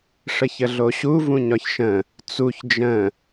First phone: ʂ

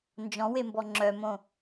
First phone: n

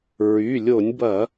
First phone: ɹ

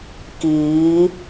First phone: k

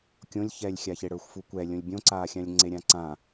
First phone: kʲ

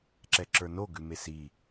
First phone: ǁ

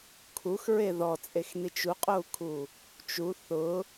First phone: kʰ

